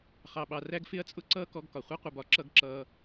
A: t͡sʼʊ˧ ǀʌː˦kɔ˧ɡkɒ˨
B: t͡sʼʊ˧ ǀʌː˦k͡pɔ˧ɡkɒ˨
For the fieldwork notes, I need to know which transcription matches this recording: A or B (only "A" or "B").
A